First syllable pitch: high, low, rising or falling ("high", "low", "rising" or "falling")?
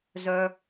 high